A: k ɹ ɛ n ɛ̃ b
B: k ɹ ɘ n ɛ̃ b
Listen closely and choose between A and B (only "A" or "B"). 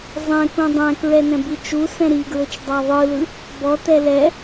A